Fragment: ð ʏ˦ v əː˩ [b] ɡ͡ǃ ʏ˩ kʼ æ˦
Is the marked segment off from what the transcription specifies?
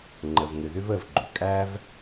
yes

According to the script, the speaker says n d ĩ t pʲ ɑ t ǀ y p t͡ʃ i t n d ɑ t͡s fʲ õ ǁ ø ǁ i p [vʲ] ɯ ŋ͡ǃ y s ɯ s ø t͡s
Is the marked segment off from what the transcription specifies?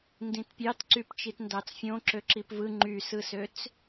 yes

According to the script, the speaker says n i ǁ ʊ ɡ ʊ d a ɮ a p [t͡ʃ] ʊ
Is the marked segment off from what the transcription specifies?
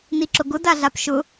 yes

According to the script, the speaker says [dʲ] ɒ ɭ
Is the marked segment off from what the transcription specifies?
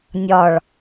yes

